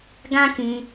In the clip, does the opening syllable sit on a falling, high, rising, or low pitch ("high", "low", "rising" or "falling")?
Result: high